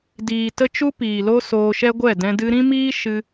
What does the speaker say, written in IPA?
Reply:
d iː˨ t ə˧ t͡ʃ u˦ p iː˨ l o˦ s oː˧ ʃ ɛ˦ ɡʷ ɛ˦˨ d ɛ̃˧ d ɨ˧ ɾ ĩ˦ m iː˦ ʃ ɨ˦

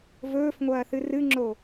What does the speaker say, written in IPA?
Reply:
v ɵː f ŋʷ ɐː θ ɨ r ɨ ŋ͡ǁ o

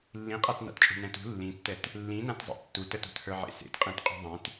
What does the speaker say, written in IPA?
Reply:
lː ĩ qʼ a t n a̰ t t͡ʃʼ ṳ n ɛ̃ t ṳ lː ĩ tː ɛ t | lː ĩ n ã t zˤ ḭ tː u t ə t ṳ t h ə˞ ʕ ḛ s ḛ t qʼ ẽ t qʼ ṳ ðˤ ẽ t

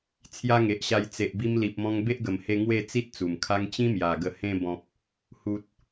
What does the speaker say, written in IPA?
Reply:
t͡sʰ j a˦ ŋ e˨ ʔ ɕ a˧ j t͡s e˨ ʔ b i˧ m l i˨ p̚ m ɔ̃˧ ŋ b e˦ ʔ ɡ ə˨˩ m h e˧ ŋ w e˥˧ t͡s i˦ t̚ t͡s u˨˩ m kʰ a˦ ŋ t͡ɕ ĩ˦ m j a˨˩ ɡ ə˨˩ h ẽ˧ b ɔ̃˨ p̚ | h u˨ t̚

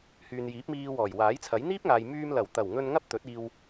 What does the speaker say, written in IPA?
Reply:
h yː˨ n j iː˨˥ p̚ m iː˧ w ɔː˨˩ j w aː˨˥ j t͡sʰ ɐ˨˥ j n̪ iː˥ p̚ ŋ aː˨ j m yː˧ m l ɐ˨˩ w t̪ ɐ˨˩ w ŋ ɵ˧ n ŋ ɐ˥ p̚ t̪ ɵ˨˥ t̚ iː˧ w

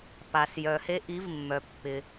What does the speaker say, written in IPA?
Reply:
p a˩ s j œ˩ h e˦ ʔ i˨˦ v mː œ˩ pː ɪ˩

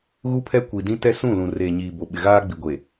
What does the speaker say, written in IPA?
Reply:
ɣ u˦ pʰ ɛ˦ kʷ i˨ d ĩ˦ t ɛ˦ s ũ˦˨ l ũ˨ r eː˨ ɲ iː˨ b o˨ ɓ ɪ˨ ɣ aː˦ ɡ͡b i˨ ɡʷ e˨

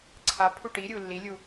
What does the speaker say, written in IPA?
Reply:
ǀʰ a pʰ u ʈ i ɾʲ u lː i lʲ u

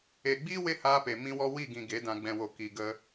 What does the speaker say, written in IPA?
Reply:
e˨ ɡ͡b i˦ w e˦ h aː˧ p e˨ m ĩ˧ w ɔ˧ w i˦˨ ɡ ĩ˨ ɡ e˨˦ d ã˨ ɡ͡b ɛ̃˨ w o˨ k i˨ ɡ ə˧

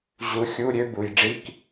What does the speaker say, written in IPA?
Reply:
ʑ u˨˥ xʲ u˧˥˧ ɾʲ ø˥ b u˨ j ɖ͡ʐ i˧˥˧ k

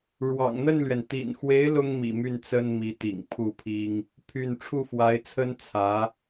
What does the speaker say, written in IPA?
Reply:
ɻ w ɑ̰˨˩ ŋ n̪ ə˥˩ n l ɥ ɛ˩ n t̪ ḭ˨˩ n x w e˧˥ ɪ̯ l ʊ˥ ŋ m ḭ˨˩ m y˥˩ n t͡s ə˥ n m i˧˥ t̪ ḭ˨˩ ŋ pʰ u˥˩ pʰ i˥ ŋ | pʰ y˥˧ n ʈ͡ʂʰ u˥˩ f w a˧˥ ɪ̯ t͡sʰ ə˥ n t͡sʰ ä˧˥

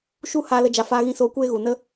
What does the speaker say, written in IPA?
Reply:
ʃ u˦ h aː˧ l ə˧ d͡ʒ a˧ f aː˧ ɣ ĩ˧ s oː˧ kʷ eː˦ ɣ u˨ n ə˦

